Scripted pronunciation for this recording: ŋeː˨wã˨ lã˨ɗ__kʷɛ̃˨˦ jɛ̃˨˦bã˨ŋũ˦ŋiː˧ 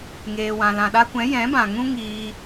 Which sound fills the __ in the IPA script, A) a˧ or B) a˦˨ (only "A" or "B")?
A